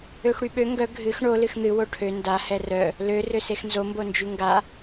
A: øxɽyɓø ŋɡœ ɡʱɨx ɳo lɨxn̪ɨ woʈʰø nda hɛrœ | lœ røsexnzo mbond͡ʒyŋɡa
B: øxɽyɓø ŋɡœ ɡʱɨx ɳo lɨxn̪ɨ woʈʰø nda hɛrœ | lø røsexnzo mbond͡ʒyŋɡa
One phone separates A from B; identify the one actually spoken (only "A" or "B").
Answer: B